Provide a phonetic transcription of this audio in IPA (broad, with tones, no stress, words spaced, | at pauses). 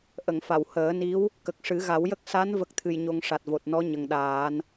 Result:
ʔə˨˩˨ŋfa˨˩˨w həː˨˩˦ni˧˥w | kə˨˩k̚ʂɨ˨˩˦ɣa˨˩˦wjə˦˥k̚ sa˧˥n və˦˥k̚t̪ʰɨ˧jɲo˧ŋ ʂa˨˩t̚vo˨˩t̚nɔ˧˥ ɲə˨˩ŋɗaː˨˩˦n